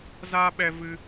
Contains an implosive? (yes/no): yes